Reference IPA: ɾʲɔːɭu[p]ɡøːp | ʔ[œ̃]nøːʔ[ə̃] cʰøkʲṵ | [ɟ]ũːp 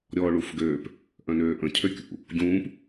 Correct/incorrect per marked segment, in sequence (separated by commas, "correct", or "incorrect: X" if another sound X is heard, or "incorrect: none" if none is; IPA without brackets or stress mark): incorrect: f, correct, correct, correct